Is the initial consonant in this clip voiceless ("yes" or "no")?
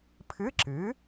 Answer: yes